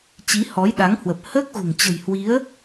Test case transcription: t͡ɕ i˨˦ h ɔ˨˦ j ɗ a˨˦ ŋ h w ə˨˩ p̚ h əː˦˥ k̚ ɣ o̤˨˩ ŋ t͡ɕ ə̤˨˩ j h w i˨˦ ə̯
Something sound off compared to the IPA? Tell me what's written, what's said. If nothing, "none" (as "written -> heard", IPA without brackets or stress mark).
none